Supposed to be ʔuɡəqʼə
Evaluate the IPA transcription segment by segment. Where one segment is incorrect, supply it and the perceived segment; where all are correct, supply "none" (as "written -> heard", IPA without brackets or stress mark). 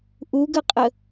none